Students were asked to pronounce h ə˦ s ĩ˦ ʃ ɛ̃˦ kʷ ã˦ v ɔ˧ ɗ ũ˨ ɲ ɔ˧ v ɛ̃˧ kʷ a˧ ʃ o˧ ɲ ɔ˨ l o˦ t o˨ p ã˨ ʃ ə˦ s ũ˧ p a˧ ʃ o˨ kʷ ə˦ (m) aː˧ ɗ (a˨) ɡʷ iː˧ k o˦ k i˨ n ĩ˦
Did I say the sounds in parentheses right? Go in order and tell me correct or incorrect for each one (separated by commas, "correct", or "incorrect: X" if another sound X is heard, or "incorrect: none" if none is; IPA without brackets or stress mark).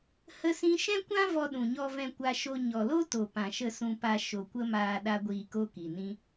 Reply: correct, incorrect: a˦